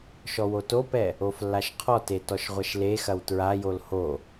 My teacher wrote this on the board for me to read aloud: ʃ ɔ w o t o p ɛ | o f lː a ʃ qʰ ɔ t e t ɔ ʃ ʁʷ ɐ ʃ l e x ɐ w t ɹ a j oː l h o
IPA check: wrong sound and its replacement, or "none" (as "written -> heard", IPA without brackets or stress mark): oː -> o